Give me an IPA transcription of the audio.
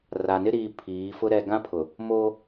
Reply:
r a˨ n ɪ˦ ɾ iː˦ pʰ iː˨˦ f ʊ˦ ɾ ɛ˦ ɡ ã˦ pʰ ʊ˨ | m oː˦

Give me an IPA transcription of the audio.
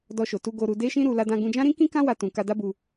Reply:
d ɔ˧ ʃ o˨ t u˧ ɡ o˧ ɾ u˧ d e˦ ʃ ĩ˦ ɾ u˧ l a˧ d ã˧ ɡ ũ˧ d͡ʒ ã˦ ɾ ĩ˦ k ĩ˦ k ã˦ w a˧ t ũ˨ k a˧ d a˦ b u˧

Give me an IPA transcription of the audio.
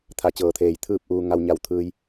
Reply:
t̪ʰ a˧˩ t͡ɕ ɤː˩ t̪ʰ eː˩ j t̪ʰ ɯː˥˨ p̚ ʔ uː˧ ŋ a˧ w ɲ a˧ w t̪ʰ ɯː˧ j

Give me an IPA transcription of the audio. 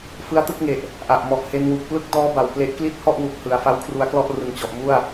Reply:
f ɯ˦˥ a̯ t ɯ˥˩ k̚ ŋ e˨˩ ʔ | ʔ a˨˩ ʔ m ɔ˨˩ ʔ h e˧ n w u˨˩ k̚ p l ɯ˥˩ k̚ d ɔː˦˥ b a˨˩ w p l e˦˥ ʔ k l i˥˩ t̚ h ɔ˥˩ ʔ w u˨˩ k̚ h ɯ˨˩ a̯ f a˦˥ w kʰ r u˧ a̯ k l ɔ˥˩ ʔ r ɯ˨˩ ŋ t͡ɕ ɔ˨˩ ʔ m u˥˩ a̯

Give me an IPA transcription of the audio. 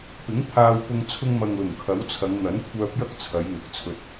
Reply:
p ɪ˨˥ ŋ t̪ʰ aː˧ w p ʊ˧ ŋ t͡sʰ ʊ˥ ŋ m ɐ˧ ŋ l ʊ˨˩ ŋ kʰ ɐ˨˥ w t͡sʰ ɐ˨˧ ŋ n̪ ɐ˨˥ n kʷʰ œː˧ p̚ j ɐ˥ k̚ t͡sʰ ɐ˨˧ j ŋ ɐ˨˥ k̚ t͡sʰ ɵ˧ t̚

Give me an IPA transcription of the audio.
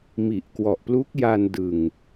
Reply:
m i˨˩ ʔ k w ɔ˨˩ ʔ p l u˦˥ k̚ j a˧ n d ɯ˨˩ ŋ

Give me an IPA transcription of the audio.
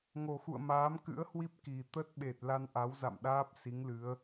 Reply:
ŋ o˨˩ x ṵ˧˨ ə̯ m aː˨˦ m k ɨ̰˧˥ ə̯ h w i˦˥ p̚ k i˨˩ t̪ ə˦˥ t̚ ɓ e˨˩ t̚ l a˧ n ʔ a˨˦ w z a̰˧˨ m ɗ aː˦˥ p̚ s i˨˦ ŋ l ɨ˨˦ ə̯

